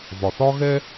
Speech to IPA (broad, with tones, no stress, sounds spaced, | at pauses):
v ɒ˩ θ ɒ˥ ɣ ɛ˥